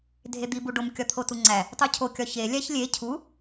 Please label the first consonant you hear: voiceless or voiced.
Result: voiced